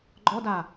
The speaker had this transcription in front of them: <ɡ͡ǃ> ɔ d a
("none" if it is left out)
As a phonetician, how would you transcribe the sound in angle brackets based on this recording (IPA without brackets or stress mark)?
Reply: ɡ͡ǃ